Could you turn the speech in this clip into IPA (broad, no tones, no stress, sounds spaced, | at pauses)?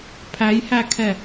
pʰ æ j h æ kʰ ɛ